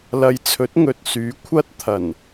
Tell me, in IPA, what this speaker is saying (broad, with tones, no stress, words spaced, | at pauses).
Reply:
lɐ˨˧jt͡sʰɵ˨˥t̚ ŋɵ˨t̚syː˨˥ kʷʰɐ˧t̚ t̪ʰɐ˨˩n